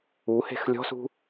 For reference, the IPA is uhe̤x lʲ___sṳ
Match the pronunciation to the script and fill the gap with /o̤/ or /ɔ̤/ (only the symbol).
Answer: ɔ̤